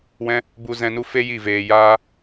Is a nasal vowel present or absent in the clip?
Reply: present